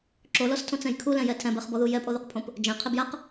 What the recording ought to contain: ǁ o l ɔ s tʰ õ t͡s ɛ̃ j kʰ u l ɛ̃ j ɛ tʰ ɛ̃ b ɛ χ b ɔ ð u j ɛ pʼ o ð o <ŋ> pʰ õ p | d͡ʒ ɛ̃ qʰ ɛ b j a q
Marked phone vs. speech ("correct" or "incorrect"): incorrect